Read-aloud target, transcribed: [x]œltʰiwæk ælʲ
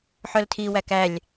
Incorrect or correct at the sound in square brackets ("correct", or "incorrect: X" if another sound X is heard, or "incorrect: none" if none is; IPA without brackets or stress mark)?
incorrect: ħ